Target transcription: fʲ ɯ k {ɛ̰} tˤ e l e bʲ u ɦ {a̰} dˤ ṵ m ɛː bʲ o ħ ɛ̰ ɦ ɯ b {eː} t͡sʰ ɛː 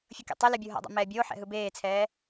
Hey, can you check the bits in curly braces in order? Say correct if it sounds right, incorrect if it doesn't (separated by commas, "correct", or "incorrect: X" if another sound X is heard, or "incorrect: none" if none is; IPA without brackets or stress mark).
incorrect: ḛ, correct, correct